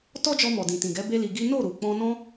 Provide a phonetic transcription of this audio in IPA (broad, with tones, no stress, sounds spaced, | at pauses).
t ɔ˦ d͡ʒ ɔ˧ m ɔ˨ d ĩ˨ t ĩ˨ ɡ ɛ˨˦ b e˦ l i˧ ɡ i˦ n o˦˨ ɾ u˨ k͡p ɔ̃˧ n ɔ̃˧